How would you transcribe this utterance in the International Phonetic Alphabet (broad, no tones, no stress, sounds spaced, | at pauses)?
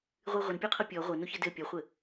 ʁʷ ɨ ʁʷ ɘ n pʲ o qʰ ɤ pʲ ɔ ʁʷ ɤ n o ç ɘ d ɘ pʲ ɔ χʷ ɘ